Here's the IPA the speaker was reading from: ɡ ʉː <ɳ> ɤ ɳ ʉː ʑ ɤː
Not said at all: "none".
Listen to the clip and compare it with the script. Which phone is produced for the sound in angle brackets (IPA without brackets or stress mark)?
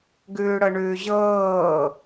ɽ